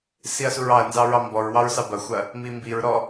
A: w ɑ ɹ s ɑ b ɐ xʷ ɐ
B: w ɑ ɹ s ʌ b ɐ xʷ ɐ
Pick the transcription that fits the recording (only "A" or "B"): A